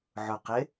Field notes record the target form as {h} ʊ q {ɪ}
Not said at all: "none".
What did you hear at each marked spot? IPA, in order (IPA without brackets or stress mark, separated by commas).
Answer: ʕ, ɪ